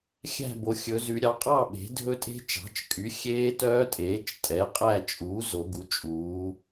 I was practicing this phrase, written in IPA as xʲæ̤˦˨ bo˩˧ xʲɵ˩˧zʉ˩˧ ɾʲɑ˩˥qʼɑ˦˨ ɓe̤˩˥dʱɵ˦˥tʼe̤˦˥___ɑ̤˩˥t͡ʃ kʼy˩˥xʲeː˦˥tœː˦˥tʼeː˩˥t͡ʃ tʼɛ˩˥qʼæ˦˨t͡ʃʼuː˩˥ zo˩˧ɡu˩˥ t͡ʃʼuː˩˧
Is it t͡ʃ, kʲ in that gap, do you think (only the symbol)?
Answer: t͡ʃ